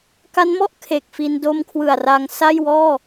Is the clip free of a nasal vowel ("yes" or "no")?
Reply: yes